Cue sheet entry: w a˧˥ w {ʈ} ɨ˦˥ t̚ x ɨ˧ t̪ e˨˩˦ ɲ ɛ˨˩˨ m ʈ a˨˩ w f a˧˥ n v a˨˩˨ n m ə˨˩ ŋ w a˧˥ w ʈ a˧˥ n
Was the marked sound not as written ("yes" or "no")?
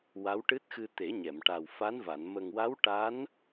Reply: no